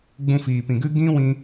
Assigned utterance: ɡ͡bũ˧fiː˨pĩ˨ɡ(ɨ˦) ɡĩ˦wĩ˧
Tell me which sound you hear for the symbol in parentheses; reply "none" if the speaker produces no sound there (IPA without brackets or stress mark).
ɨ˦